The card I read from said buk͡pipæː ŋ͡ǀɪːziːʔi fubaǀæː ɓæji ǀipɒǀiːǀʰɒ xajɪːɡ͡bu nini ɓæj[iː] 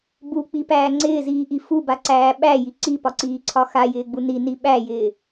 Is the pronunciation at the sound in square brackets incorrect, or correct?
incorrect